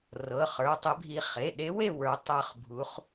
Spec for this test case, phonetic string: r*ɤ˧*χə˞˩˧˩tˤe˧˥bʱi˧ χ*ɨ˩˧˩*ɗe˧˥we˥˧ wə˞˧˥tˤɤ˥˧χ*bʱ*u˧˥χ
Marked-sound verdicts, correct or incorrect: incorrect: ɤ˩˧˩, incorrect: e˩˧˩, correct

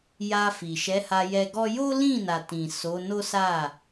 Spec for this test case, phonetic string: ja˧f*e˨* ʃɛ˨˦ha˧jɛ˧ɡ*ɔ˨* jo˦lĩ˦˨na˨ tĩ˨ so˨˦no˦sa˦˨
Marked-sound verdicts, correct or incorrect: incorrect: i˨, incorrect: ɔ˦

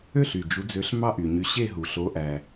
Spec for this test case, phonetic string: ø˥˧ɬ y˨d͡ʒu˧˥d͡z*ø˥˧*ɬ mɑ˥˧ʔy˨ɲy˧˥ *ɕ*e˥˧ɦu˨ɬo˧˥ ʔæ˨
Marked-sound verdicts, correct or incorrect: incorrect: ø˧˥, correct

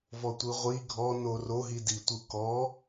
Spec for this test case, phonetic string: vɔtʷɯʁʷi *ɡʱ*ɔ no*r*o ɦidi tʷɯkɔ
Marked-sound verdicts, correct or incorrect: correct, correct

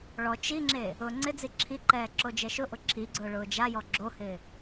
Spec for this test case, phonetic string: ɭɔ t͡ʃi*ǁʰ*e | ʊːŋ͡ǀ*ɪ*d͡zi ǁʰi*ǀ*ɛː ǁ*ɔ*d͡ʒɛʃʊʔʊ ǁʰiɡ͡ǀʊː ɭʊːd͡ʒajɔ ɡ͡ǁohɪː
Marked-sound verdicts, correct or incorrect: incorrect: ŋ͡ǁ, correct, incorrect: ǃ, incorrect: o

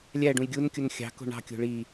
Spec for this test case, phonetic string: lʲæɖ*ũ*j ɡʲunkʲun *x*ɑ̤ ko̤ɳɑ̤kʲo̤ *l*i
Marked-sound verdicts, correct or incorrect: correct, incorrect: xʲ, incorrect: ɭ

